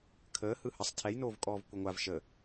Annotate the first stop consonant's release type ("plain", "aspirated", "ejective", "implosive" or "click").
aspirated